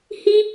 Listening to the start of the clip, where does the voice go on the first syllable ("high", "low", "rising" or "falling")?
high